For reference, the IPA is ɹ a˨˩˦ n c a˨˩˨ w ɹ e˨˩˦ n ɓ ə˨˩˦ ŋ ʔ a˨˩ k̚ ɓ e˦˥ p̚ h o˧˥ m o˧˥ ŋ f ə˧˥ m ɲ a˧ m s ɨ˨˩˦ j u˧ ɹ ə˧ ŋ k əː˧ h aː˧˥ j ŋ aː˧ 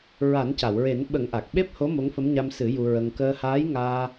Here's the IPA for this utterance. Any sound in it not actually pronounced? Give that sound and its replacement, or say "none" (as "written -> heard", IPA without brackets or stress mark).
none